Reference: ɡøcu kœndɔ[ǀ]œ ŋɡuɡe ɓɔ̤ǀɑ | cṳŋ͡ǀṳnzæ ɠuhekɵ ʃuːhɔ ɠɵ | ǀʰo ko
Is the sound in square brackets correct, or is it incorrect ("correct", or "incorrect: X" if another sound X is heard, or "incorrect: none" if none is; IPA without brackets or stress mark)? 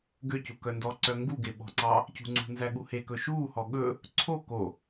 correct